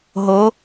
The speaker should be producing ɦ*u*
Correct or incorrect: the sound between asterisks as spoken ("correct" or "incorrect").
incorrect